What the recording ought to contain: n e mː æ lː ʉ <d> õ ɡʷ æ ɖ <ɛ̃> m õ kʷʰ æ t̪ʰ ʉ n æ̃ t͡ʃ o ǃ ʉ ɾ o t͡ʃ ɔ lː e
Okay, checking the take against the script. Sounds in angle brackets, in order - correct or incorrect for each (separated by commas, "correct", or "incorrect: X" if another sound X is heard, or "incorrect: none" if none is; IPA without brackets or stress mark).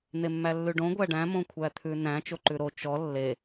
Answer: incorrect: ɖ, incorrect: æ̃